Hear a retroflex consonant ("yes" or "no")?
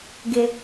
no